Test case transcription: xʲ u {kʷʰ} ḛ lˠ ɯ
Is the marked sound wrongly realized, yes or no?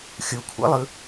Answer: no